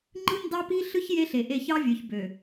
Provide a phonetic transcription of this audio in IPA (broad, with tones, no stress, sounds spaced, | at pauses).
ŋ͡ǃ ɯ˦ n d ɑ˦ p i˦ ɬ ɯ˦ ç j e˦ ɬ e˨ ʔ e˦˨ ç ɑ˦ vʲ ø˨ ç b ø˨